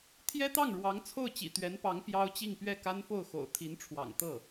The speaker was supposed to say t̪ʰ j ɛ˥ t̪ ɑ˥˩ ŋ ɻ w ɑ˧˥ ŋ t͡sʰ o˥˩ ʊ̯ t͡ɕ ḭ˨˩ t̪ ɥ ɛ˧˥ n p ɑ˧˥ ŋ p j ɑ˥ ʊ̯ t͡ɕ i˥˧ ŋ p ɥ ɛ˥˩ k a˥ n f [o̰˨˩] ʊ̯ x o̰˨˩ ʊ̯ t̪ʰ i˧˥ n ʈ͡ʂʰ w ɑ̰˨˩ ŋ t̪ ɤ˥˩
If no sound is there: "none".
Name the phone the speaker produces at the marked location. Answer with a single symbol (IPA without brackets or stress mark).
o˥˩